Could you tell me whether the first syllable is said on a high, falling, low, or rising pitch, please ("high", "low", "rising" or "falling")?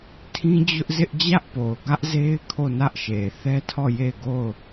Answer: high